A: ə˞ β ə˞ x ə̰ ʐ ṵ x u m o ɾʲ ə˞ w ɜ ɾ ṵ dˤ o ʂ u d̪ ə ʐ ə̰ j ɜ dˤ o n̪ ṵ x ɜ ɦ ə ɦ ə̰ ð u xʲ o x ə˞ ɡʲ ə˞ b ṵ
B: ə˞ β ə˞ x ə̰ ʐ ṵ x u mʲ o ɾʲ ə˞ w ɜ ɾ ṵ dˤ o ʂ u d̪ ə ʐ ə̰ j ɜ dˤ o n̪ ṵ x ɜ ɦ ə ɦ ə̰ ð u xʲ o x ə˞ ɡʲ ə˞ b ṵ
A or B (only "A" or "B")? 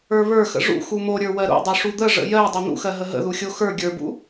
A